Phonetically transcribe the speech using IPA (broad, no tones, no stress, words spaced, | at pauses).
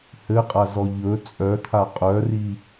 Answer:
hɘqʼazɔ ʎɵ t͡sʼœt̪ʰa qʼœri